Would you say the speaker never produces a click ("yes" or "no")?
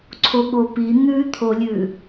no